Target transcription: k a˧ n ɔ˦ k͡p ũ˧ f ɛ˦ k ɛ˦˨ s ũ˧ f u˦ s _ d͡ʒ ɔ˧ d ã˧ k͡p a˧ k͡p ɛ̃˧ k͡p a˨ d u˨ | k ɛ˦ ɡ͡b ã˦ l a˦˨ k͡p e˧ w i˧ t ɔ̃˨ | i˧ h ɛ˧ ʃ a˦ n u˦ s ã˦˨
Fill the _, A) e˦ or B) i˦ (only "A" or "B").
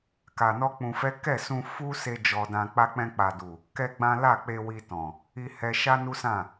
A